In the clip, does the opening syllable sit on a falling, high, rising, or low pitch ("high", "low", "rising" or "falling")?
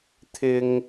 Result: high